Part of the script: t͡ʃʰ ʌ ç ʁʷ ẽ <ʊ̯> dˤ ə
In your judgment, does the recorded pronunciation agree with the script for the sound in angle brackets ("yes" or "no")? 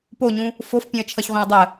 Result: no